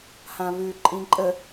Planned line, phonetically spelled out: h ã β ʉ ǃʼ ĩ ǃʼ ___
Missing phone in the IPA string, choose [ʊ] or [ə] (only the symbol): ə